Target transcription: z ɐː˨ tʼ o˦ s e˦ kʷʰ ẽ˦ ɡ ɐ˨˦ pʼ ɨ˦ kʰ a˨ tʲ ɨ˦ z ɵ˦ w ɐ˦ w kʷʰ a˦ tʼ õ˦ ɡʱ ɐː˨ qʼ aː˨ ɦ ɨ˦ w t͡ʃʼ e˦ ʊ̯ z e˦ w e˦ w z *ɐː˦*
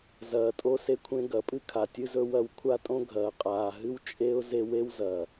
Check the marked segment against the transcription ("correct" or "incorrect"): incorrect